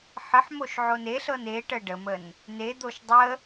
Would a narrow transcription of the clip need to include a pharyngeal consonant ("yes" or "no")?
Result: yes